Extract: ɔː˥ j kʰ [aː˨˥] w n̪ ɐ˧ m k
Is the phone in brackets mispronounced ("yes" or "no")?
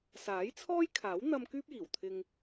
no